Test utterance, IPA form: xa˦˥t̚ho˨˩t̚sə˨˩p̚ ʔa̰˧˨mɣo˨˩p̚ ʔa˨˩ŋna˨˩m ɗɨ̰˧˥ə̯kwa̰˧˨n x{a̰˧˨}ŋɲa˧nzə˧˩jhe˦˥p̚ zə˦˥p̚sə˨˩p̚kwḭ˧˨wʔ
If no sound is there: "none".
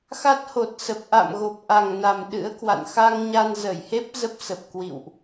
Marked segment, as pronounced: a˧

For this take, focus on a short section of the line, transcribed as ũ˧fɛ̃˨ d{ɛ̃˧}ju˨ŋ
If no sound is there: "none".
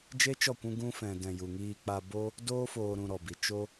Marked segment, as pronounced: ɛ̃˨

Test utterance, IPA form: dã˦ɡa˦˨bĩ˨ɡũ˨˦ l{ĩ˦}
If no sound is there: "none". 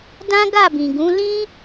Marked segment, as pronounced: ĩ˦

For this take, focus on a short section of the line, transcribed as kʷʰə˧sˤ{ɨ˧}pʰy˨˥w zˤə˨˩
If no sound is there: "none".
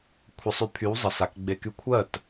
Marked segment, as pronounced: y˧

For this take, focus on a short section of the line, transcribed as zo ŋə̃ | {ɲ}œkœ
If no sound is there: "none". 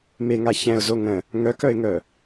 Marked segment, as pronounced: ŋ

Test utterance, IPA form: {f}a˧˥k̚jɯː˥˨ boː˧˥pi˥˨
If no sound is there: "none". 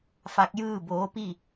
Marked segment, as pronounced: f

